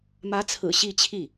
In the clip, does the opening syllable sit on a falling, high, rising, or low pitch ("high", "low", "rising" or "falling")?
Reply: rising